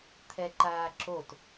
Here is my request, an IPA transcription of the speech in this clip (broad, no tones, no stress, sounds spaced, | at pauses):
t̪ʰ ɛ ǃ aː ǁ o t